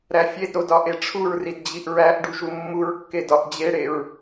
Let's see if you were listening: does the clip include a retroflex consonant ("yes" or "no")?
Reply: yes